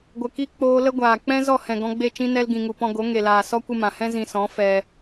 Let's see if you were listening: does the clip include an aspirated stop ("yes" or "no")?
no